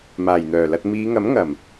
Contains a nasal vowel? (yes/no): no